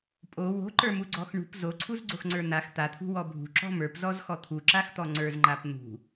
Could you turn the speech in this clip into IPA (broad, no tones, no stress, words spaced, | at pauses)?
pʼo wo̤ǃə˞muɡ͡ǀɔx ɳṳp zoǀʰuzɡ͡ǀoxŋ͡ǀə˞ n̪ax t̪at̪ʰṳwɔ bʱṳǁɔ̤ mə˞pzɔzxɔ t̪ʰuǁaxt̪ɔ ŋ͡ǀə˞zŋ͡ǃap n̪ṳ